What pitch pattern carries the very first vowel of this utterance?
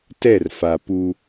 falling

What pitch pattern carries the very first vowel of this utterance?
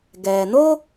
low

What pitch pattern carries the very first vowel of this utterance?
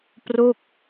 falling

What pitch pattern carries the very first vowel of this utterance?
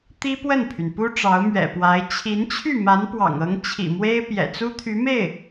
high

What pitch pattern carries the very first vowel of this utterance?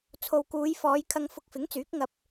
low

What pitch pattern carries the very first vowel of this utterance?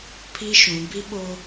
high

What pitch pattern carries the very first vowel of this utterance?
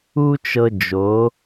high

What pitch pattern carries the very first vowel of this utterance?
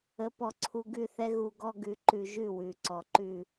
rising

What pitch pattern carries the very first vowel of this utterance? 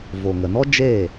low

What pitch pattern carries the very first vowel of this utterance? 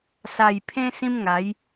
low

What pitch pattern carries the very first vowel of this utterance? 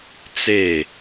falling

